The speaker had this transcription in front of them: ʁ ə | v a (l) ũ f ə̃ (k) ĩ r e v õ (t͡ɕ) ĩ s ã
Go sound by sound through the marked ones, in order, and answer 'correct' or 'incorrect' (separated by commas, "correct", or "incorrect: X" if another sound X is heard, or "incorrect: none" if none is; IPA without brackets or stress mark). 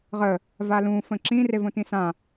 correct, incorrect: ǁ, incorrect: t